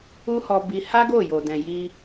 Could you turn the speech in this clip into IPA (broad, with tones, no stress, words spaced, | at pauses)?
u˦hɔ˧bi˧ ha˦ɡo˦˨jo˨dɛ̃˨ ji˧